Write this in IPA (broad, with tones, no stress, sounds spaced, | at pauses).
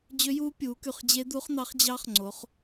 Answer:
d͡ʑ ø˧˥ j uː˧˥ pʲ uː˩˧ k y˧˩ χ d͡ʑ e˧˥ d̪ u˧˥ χ n̪ ɑ˧˥ χ d͡ʑ ɑ˧˥ χ ŋ͡ǀ o˩˧ χ